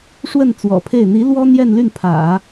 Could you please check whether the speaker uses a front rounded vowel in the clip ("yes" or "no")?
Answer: yes